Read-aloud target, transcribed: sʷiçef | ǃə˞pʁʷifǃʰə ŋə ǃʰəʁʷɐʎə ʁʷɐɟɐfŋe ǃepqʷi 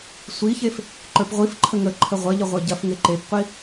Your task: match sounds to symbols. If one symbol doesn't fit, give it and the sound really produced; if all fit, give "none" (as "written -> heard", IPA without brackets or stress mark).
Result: none